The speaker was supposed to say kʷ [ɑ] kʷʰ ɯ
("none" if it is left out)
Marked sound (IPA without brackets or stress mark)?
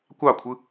ɑ